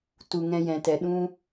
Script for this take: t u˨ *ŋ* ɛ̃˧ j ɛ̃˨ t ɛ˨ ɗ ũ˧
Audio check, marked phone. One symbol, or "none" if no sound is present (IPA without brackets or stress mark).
ŋ